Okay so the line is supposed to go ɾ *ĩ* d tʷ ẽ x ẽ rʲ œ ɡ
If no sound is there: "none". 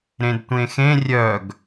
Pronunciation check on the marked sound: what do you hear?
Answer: ẽ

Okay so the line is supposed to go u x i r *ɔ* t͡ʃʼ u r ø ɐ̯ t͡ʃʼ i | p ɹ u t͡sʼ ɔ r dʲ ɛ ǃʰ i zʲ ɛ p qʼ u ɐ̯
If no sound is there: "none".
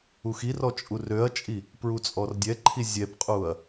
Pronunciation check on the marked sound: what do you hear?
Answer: ɔ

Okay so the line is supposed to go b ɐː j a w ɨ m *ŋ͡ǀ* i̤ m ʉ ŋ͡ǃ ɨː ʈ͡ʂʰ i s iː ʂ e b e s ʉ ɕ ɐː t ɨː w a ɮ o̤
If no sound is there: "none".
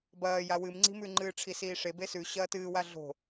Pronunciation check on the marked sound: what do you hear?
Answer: ŋ͡ǀ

